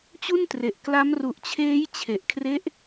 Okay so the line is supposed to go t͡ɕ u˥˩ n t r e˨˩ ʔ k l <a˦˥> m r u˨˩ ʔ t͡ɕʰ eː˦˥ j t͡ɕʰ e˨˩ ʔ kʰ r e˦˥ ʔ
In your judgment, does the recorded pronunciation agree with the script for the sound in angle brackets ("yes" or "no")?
yes